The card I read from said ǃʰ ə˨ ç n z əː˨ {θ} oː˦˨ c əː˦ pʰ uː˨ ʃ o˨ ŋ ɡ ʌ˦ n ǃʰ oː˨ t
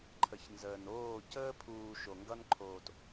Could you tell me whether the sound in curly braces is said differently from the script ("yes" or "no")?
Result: yes